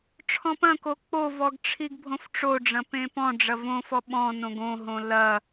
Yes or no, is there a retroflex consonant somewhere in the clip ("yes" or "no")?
yes